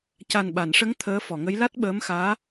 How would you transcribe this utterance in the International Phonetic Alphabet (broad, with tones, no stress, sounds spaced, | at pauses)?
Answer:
c a˨˩ n ɓ a˨˩˨ n ʂ ə˧˥ ŋ t̪ʰ əː˧˥ f ɔ˨˩˨ ŋ ə˧˥ j l a˦˥ t̚ ɓ əː˧˥ m x aː˧˥